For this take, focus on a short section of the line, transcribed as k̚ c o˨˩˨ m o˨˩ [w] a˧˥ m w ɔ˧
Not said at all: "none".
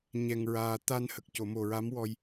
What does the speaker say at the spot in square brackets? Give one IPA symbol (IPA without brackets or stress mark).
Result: ɹ